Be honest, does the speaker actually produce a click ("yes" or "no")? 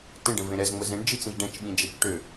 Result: no